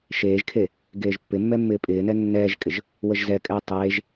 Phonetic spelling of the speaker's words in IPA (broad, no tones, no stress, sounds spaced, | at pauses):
ʃ eː ʒ kʰ e | ɡ eː ʒ pː ɪ mː ɛ mː ɪː pʼ ɪː n ɛ nː ɛː ʒ kʼ ɪ ʒ | w ə ʒ z ɛ kʼ ɛ j tˤ eː ʒ